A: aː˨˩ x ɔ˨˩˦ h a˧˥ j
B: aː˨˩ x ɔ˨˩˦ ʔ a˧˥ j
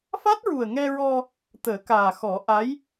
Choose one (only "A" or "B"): B